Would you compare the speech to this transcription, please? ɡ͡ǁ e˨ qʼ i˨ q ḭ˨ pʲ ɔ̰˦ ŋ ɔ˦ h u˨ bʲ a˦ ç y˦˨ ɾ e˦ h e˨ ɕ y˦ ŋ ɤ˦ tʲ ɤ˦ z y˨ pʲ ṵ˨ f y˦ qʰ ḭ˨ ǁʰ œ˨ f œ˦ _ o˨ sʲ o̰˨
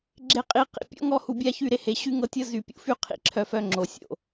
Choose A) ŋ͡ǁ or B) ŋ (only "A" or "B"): A